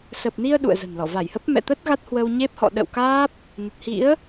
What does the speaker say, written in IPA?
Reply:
s ə˨˩ p̚ n i˧ ə̯ ɗ ṵ˧˨ ə̯ z ə̤˨˩ n l ɔ˧˩ v a˧˩ j h ə˦˥ p̚ m ɛ̰˧˨ t̪ ə˦˥ t̚ ɣ a˦˥ t̚ h w ə˧ w ɲ e˦˥ p̚ h ɔ̰˧˨ ɗ ə̰˧˨ w k aː˦˥ p̚ | n ə˨˩ t̚ h ḭ˧˥ ə̯

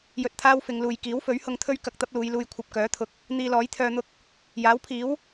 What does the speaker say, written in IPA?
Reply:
j ɵ˧ t̚ t̪ʰ aː˥ w f ɪ˨˧ ŋ l uː˨ j k iː˨˥ w f ɵ˨˥ ɥ h ʊ˧ ŋ t̪ʰ ɵ˥ ɥ k ɐ˧ k̚ t̪ ɐ˥ p̚ l uː˨˧ j l uː˧ j kʷʰ ɐ˧ p̚ k œː˨˥ t̪ʰ ʊ˨˥ k̚ | n̪ iː˧ l ɔː˨˥ j t̪ʰ œː˧ n̪ ʊ˥ k̚ | j aː˨˥ w pʰ iː˨˥ w

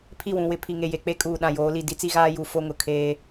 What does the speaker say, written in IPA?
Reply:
pʰ i˦˨ w ũ˨ w ɪ˦ pʰ i˨ ŋ e˨ j e˨ k͡p e˦ kʼ uː˨ ɗ ã˨ j oː˨˦ l i˨ d i˦ t͡s i˦ ɣ aː˦ j u˨ f o˦ ŋ ʊ˨ kʰ eː˦

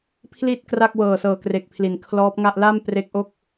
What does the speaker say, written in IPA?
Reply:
pʰ l i˥˩ t̚ k r a˥˩ k̚ w ɤː˨˩ s ɤː˨˩ k r e˨˩ k̚ pʰ l i˩˦ n kʰ l ɔː˦˥ p̚ ŋ a˥˩ ʔ l a˥˩ m p r e˦˥ k̚ ʔ o˥˩ k̚

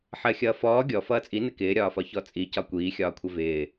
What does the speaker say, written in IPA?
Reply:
ħ ɜ xʲ ʌː f ɔː ɡʲ ɔ f ʌː t͡sʼ i n ɪ k ɪː ɾʲ ɒː f ɒ ç ɔ t͡sʼ i c ɒ kʷ iː xʲ ɒː kʷʰ ɪ v ɪː

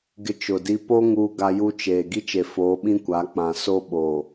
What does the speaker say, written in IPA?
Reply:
ɡ ɪ˦ t͡ʃ ʊ˨ d i˦ p o˦ ŋ uː˦ ɡ a˦ j u˦ t͡ʃ eː˨ ɡ i˦ t͡ʃ e˨ f oː˨˦ ɓ ĩ˦ kʷ a˨˦ k͡p ã˨ s o˦ ɓ oː˨

